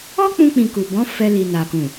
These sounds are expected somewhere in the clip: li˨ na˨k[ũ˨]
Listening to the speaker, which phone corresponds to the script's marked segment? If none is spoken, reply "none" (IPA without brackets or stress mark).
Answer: ũ˨